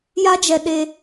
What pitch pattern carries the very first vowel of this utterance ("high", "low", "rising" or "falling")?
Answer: high